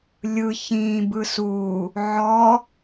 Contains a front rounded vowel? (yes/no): no